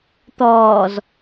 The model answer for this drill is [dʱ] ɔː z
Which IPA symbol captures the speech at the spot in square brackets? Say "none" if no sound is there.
t̪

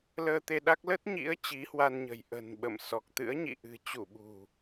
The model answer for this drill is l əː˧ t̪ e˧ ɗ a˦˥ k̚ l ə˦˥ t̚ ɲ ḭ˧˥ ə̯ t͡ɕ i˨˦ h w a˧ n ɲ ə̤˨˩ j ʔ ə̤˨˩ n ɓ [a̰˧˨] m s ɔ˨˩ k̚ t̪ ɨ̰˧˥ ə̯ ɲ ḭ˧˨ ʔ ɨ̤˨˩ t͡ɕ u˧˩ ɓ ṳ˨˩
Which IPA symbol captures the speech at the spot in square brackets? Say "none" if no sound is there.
ə̰˧˨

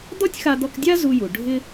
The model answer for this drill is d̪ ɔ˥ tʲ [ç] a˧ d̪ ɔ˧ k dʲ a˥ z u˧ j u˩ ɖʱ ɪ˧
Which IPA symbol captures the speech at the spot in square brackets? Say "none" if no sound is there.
x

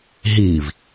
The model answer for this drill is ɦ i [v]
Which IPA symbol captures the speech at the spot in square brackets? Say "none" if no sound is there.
v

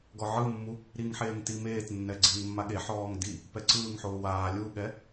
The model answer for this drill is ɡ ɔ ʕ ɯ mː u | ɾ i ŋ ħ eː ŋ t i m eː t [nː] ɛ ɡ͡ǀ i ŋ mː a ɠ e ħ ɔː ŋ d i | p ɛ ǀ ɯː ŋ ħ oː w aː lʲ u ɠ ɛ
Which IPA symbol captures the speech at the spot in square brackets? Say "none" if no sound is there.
nː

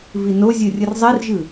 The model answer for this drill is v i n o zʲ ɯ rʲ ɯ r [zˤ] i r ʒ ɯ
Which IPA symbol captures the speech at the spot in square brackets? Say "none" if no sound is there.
zˤ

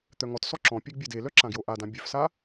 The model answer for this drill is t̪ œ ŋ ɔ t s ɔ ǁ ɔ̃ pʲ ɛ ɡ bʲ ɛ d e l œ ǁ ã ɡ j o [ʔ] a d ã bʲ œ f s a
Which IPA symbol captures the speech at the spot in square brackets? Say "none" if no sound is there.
ʔ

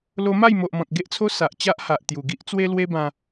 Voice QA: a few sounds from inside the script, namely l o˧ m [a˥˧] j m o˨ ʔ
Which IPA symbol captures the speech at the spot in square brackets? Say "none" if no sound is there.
a˥˧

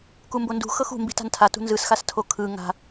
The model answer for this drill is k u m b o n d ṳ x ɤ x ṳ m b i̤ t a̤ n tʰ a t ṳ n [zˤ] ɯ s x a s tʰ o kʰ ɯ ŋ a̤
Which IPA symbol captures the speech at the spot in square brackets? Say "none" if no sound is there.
z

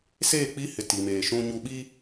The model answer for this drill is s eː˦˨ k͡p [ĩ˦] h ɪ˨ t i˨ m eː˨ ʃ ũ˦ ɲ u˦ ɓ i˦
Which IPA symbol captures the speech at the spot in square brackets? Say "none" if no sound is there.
i˦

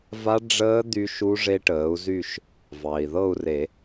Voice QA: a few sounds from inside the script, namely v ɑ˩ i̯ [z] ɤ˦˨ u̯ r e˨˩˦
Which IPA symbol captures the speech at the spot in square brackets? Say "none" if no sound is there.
ð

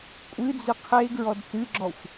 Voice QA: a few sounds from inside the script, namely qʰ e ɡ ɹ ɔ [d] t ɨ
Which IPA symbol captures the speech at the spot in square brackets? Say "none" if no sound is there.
d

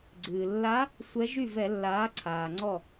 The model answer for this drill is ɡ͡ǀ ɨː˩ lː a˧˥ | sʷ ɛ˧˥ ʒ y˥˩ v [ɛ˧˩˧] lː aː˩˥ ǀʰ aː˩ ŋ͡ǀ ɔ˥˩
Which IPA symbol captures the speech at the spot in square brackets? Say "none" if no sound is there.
ɛ˧˩˧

